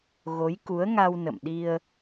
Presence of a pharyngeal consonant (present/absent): absent